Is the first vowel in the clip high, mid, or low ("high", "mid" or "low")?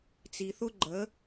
high